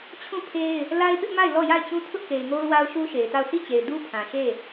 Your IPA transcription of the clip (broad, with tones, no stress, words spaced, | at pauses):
t͡ɕʰũ˦˨pʰe˦ɪ̯ | la˦ɪ̯pɪ˦ʔma˦˨ɪ̯ lɔ˦˨ ja˦˨ɪ̯t͡ɕũ˦ tʰʊ˦ʔke˨ɪ̯ŋo˦ʊ̯ wa˦ʊ̯ʃu˦ʃe˨ɪ̯ta˦˨ʊ̯ sʰi˦˨t͡ɕe˨ɪ̯ du˦pʰã˨ʃe˦˨